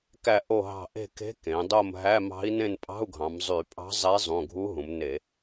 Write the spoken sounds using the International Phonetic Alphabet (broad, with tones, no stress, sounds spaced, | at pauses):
k æ˦˨ ʔ o˦˨ ɦ ɑ̤˦˨ ʔ e̤˦˨ k e̤˧˥ k ẽ˩˧ dˤ o˦˨ m ɦ æ˧˥˧ m ɑ̤˧˥ i̯ n ẽ˦˨ n pʼ ɑ̤˧˥˧ u̯ ɡʱ ɑ̃˩˧ m zˤ y˧˩˧ pʼ ɑ̤˧˥ zˤ e˧˥ zˤ ũ˩˧˩ ɡʱ u˧˥ ɦ ũ˩˧ m n e˧˩˧